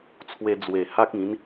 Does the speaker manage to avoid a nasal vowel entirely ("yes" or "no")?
no